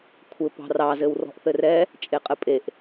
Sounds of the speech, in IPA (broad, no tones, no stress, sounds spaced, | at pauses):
kʷʰ ɘ p ɑ̤ r ɑ z ɘ w r ɔ̤ ʔ θ ɘ r ɛ | t͡ʃʼ e qʼ ɘ pʼ e ʔ